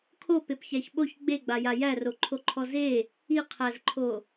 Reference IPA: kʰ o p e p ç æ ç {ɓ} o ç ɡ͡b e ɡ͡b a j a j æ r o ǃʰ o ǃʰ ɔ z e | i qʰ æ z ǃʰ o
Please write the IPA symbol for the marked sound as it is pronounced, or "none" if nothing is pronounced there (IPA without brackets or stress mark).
ɓ